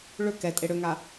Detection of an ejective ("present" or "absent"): present